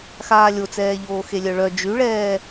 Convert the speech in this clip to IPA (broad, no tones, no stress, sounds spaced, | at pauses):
x aː lʲ o t͡s ɛː ʎ oː x e lʲ œ ɭ œ d͡ʒ y ɭ ɛː